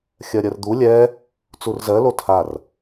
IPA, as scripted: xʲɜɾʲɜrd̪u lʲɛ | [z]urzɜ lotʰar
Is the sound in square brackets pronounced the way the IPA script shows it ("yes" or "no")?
no